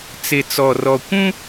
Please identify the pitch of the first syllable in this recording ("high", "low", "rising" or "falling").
low